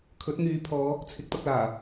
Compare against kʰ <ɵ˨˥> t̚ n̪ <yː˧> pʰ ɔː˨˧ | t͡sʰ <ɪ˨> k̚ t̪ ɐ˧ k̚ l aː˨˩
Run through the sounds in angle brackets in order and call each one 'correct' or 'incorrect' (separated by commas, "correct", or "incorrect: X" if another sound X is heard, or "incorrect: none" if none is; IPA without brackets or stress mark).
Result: correct, incorrect: yː˨˧, incorrect: ɪ˨˥